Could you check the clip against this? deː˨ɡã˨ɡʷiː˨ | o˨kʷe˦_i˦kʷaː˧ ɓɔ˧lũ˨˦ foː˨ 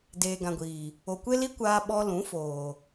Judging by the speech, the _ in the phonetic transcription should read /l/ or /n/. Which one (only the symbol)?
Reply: l